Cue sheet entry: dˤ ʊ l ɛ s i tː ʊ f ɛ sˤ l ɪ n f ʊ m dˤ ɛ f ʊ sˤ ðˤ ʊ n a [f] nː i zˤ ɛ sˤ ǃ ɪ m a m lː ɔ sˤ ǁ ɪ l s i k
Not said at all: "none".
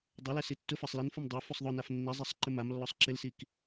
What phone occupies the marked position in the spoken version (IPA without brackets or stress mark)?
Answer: f